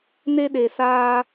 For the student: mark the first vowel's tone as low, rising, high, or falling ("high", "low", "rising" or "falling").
high